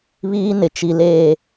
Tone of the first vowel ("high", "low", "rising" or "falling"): high